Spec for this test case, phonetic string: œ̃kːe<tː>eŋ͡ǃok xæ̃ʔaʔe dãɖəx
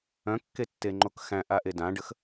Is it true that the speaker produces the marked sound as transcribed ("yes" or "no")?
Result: yes